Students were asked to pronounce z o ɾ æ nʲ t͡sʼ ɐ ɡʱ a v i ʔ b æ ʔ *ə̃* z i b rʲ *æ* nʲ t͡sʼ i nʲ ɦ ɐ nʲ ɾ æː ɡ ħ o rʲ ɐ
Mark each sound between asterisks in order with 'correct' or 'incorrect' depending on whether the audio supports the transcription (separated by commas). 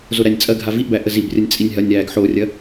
incorrect, incorrect